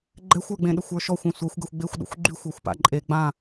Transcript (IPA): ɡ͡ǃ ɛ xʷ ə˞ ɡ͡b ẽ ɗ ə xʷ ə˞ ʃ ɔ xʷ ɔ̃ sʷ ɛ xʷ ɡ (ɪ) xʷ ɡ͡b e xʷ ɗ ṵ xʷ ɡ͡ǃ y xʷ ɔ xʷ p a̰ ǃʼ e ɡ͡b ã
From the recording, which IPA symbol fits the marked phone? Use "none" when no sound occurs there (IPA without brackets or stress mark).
ɛ